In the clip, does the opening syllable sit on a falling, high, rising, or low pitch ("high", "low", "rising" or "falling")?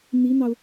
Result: rising